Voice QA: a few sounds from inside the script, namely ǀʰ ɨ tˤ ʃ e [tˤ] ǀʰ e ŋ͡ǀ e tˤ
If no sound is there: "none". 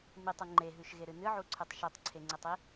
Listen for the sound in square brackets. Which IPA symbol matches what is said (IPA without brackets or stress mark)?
tˤ